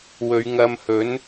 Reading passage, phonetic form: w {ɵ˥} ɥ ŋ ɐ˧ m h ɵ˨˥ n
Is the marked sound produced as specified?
no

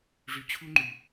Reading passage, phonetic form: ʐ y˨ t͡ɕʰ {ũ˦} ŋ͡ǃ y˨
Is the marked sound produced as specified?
no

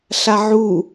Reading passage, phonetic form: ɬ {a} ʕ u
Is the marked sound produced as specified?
yes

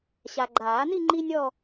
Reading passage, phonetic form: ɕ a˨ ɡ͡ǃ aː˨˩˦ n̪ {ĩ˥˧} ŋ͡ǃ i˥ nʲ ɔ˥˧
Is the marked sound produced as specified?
no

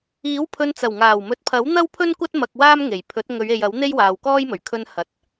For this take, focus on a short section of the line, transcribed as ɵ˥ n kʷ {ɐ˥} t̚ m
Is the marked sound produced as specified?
yes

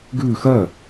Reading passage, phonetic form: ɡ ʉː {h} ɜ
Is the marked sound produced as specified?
no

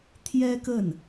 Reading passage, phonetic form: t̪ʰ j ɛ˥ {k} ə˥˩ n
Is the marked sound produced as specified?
yes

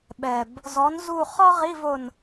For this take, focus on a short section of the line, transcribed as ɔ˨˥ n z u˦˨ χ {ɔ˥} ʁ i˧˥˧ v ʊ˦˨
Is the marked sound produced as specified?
yes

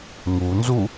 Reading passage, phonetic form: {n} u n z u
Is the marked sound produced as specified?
no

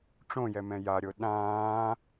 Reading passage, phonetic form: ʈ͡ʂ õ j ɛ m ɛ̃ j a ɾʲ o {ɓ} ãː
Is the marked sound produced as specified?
no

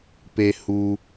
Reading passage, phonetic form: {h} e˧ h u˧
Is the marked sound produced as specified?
no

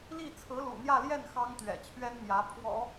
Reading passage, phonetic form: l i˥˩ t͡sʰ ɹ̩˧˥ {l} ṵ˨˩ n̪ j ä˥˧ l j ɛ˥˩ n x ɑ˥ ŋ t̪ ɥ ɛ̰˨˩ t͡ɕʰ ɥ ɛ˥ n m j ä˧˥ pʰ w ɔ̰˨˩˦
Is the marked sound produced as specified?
yes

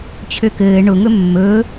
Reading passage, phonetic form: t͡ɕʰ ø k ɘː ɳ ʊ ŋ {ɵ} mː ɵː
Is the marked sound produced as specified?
yes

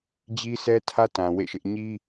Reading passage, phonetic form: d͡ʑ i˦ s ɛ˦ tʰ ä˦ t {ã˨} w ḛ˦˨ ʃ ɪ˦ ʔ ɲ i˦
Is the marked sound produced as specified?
yes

